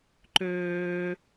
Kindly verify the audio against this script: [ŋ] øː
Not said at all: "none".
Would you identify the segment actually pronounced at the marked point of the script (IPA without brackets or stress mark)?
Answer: ǃ